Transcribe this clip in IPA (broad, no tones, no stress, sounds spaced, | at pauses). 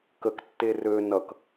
k ə k tː e r ø n ʌ k